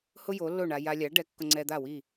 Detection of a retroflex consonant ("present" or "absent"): present